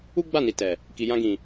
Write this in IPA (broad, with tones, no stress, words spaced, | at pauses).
u˦ɡ͡ba˦˨ni˨ tɛ˨ | ki˨ jã˧ɡĩ˨